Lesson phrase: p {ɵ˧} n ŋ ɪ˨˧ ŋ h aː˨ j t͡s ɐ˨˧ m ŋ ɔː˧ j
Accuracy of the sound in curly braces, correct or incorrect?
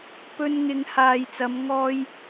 correct